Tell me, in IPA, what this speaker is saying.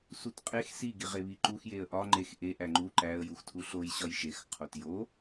s u t qʼ e x s i ɡ i ʁ e β i ǃ u x j e ə̯ ʔ ɒ ŋ͡ǃ e x ʔ e ʔ æ ŋ͡ǃ u ǃ æ ə̯ j u x tʰ u ɬ o j ɕ ɒ j ʃ e x qʰ o t j o

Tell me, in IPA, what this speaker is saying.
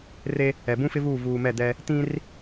r e˦ | ɛ˨ b ũ˦ f ɪ˦ v uː˦˨ v uː˨ m ɛ˦˨ d ɛ˦ | t ĩ˦ r

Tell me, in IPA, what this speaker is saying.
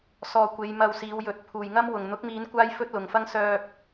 s ɔː˨ kʷ e˨˧ j m ɐ˧ w s iː˨˧ w j ɵ˨˥ t̚ pʰ uː˨˩ j ŋ ɐ˥ m w ʊ˨˩ ŋ n̪ ʊ˨˥ k̚ m iː˨˧ n kʷ aː˥ j f ɵ˥ t̚ l ʊ˨ ŋ f ɐ˥ ŋ s œː˧ p̚

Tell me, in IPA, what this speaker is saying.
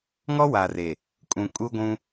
ŋ ɔ˦ w a˨ r e˨ | kʼ ũ˨ kʼ u˦ ɡʷ ũ˦

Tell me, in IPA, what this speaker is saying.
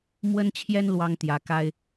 m w ə˥ n t͡ɕʰ j ɛ˥ n l w ɑ˥ ŋ t̪ j ä˧˥ k a˥ ɪ̯

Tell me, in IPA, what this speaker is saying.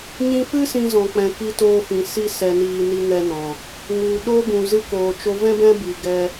ɲ ĩ˧ f ɨ˦ s ĩ˧ z ɔ̃˨ k͡p ɛ̃˨ k i˧ t oː˧ f ĩ˨ s i˧ s ɛ˨ n iː˨ n i˧ ŋ ɛ˧ n ɔ̃˨ | ŋ u˨ ɗ oː˦ ɡ ũ˨ z ɨ˧ k oː˨ t͡ʃ o˧ v ɛ̃˦ b ɛ̃˦ b i˨ ɡ ɛ˧

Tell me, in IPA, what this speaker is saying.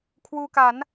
kʰ w uː˧ k a˩˦ n

